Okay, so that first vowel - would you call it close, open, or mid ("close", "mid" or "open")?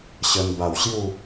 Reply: mid